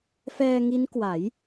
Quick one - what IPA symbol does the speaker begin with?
f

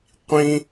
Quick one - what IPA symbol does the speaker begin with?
qʷ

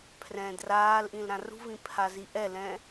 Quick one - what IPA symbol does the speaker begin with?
pʰ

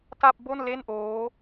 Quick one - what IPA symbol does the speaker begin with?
t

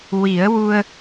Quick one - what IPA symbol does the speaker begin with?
w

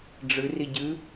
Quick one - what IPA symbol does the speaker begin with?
ɖ͡ʐ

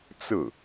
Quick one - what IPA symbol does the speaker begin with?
t͡s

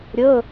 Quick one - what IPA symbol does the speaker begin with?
ɾʲ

